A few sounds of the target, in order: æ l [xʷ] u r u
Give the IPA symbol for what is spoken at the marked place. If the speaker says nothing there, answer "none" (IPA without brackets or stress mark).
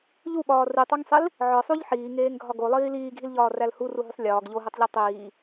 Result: h